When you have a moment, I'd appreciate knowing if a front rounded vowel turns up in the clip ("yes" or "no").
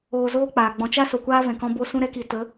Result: no